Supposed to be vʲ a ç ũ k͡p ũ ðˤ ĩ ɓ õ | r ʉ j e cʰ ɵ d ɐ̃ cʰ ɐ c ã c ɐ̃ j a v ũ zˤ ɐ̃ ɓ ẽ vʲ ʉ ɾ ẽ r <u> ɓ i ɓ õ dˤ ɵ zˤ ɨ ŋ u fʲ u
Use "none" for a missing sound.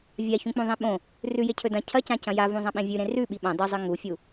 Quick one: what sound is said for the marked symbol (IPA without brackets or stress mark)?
ʉ